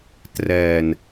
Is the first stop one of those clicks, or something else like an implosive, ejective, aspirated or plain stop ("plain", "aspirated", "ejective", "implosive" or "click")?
plain